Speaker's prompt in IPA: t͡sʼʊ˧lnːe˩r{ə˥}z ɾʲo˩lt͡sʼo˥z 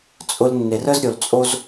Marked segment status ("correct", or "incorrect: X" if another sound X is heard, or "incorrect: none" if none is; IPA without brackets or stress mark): correct